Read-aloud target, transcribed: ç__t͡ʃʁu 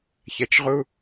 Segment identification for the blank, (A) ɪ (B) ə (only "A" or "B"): B